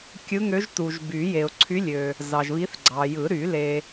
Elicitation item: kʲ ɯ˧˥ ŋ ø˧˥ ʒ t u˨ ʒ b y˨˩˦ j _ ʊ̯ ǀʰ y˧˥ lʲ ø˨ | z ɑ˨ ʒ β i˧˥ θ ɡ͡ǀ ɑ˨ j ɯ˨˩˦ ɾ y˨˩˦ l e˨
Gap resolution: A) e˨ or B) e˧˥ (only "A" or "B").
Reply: A